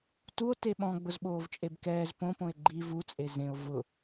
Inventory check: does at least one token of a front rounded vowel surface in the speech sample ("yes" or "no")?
no